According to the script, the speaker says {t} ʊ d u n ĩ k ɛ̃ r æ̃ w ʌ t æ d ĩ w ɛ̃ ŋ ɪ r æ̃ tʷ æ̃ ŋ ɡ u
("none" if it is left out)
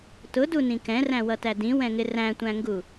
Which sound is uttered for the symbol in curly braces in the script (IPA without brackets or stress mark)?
t